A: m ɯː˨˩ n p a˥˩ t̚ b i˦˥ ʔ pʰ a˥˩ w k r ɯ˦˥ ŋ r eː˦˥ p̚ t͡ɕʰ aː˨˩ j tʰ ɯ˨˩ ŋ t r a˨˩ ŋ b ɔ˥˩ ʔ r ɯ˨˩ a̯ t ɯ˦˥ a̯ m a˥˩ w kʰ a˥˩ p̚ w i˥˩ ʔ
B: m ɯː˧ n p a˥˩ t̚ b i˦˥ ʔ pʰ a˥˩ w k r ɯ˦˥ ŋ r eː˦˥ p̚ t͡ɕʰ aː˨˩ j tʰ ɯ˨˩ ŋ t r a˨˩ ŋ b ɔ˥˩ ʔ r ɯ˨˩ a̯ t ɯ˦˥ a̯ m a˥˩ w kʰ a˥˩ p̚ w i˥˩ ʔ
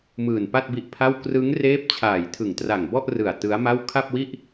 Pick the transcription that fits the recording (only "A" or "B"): A